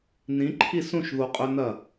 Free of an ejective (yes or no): no